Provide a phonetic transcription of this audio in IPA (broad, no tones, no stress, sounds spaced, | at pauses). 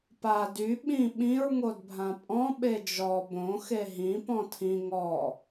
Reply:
p a d y ɓ ĩ ɓ ĩ ɹ ŋ o d bʱ ã pʼ ɔ̃ ɓ e d͡ʒ ɔ b õ x e ɦ ĩ p ɔ̃ tʰ ĩ ŋ ɔ